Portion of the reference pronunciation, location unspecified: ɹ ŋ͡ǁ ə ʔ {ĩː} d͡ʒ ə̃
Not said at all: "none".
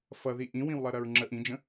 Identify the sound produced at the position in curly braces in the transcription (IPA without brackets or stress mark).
ĩ